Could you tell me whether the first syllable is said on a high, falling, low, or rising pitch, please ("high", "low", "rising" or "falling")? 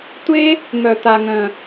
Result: high